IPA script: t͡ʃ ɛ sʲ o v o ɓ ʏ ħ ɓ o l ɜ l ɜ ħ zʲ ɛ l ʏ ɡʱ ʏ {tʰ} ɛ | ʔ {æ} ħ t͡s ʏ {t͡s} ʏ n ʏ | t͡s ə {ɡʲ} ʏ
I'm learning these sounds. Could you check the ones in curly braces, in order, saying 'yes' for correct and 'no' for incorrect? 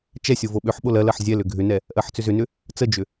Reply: no, no, no, no

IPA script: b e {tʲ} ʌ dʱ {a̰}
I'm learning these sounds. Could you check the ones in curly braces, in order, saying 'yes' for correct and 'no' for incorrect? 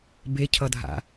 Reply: no, yes

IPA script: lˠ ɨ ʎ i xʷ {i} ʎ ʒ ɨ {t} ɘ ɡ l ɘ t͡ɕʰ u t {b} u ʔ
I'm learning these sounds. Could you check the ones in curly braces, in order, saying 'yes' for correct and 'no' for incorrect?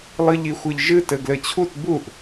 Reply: no, yes, yes

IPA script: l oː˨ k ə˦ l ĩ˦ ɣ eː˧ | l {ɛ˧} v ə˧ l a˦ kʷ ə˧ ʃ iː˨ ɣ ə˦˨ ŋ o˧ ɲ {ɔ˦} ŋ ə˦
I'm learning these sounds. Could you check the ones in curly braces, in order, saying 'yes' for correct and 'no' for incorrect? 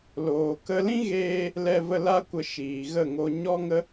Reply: yes, yes

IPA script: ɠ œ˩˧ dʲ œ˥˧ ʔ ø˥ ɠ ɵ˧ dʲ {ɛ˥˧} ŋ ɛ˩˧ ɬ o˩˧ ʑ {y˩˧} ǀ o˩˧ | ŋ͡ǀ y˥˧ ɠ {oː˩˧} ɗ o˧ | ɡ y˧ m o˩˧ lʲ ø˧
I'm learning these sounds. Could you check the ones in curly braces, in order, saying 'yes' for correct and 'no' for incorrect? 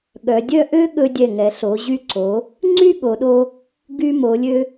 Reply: no, no, no

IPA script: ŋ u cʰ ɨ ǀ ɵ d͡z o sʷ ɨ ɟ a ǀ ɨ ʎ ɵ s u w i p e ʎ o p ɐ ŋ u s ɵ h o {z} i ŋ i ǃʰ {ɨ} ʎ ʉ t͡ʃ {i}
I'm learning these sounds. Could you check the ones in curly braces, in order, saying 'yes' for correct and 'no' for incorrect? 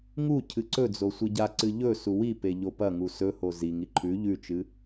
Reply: yes, no, no

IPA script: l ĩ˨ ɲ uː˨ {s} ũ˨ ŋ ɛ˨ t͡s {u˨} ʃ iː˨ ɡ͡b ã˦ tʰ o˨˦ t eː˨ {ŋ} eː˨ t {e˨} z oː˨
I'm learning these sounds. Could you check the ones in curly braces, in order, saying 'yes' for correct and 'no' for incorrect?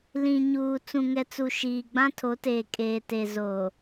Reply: no, yes, no, yes

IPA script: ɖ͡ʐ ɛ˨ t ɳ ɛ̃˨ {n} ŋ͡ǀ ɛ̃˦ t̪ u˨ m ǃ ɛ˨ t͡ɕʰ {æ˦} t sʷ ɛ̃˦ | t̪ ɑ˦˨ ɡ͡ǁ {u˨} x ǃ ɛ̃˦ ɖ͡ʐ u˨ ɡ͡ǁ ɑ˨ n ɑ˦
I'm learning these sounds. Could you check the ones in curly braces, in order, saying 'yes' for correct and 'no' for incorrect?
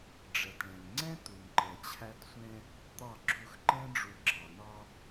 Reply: yes, yes, no

